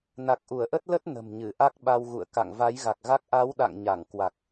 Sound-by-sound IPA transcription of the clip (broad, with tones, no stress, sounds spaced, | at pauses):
n a˨˩ k̚ ʔ u˧˩ ə̯ ʔ ə˦˥ t̚ l ə˦˥ t̚ n ə̤˨˩ m ɲ ɨ˧˩ ʔ a˦˥ k̚ ɓ a˧ w ɣ ṵ˧˨ ə̯ k a̰˧˨ ŋ v a˨˦ j ɣ a˨˩ k̚ ɣ a˦˥ k̚ ʔ a˨˦ w ɗ a̰˧˨ ŋ ɲ a˧˩ ŋ k w a˨˩ k̚